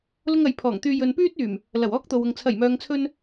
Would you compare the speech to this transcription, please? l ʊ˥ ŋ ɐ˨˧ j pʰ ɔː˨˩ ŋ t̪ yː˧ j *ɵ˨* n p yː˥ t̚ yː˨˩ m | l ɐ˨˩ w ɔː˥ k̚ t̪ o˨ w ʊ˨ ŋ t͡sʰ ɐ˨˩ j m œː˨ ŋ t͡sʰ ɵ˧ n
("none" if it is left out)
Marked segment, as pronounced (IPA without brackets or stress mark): ɵ˨